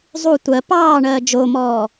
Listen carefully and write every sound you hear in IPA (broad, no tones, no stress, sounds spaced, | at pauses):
zˤ u tʷ ɜ p ɑː ɳ ɜː d͡ʒ o m ɔː